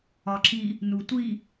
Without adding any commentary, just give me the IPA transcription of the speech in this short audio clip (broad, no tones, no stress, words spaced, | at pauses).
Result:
ɒǁi | nutʷi